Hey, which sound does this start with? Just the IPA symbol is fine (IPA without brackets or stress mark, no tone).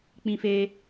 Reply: k͡p